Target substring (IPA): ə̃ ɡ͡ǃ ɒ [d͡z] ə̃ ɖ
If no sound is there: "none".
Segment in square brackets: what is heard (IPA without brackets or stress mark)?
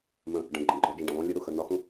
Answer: d͡ʒ